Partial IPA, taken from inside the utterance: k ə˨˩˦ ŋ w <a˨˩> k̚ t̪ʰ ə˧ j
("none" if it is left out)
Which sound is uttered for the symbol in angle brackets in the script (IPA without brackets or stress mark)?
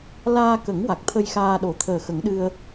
a˨˩